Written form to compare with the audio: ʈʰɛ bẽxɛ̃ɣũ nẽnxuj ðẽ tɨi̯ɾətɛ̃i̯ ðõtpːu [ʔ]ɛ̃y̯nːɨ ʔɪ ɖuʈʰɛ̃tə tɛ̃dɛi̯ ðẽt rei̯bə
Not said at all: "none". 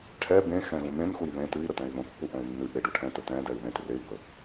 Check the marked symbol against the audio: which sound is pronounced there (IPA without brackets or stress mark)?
ʔ